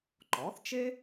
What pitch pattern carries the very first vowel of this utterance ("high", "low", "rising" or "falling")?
rising